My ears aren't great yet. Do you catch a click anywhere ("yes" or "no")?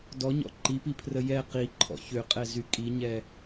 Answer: yes